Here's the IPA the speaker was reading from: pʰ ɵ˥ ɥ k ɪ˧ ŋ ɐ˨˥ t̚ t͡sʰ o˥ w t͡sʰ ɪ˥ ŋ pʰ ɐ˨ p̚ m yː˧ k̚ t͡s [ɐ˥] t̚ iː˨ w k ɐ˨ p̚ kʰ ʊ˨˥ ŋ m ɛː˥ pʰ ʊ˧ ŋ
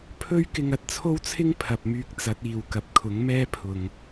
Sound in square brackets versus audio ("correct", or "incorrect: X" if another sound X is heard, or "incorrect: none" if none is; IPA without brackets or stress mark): incorrect: ɐ˨˥